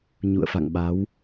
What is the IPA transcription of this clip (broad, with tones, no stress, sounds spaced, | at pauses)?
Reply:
ɲ ṵ˧˨ ə̯ f a̰˧˨ ŋ ɓ a˨˦ w